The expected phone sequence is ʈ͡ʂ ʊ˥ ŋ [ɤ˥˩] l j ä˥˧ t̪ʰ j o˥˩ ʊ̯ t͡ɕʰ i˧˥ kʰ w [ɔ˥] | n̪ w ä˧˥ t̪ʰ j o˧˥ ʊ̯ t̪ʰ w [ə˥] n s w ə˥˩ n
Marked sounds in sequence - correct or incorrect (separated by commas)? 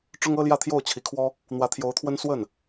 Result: incorrect, correct, correct